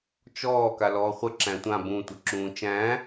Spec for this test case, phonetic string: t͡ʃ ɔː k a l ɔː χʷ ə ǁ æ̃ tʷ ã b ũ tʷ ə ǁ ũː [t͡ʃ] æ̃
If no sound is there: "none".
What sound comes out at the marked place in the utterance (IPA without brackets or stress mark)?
t͡ʃ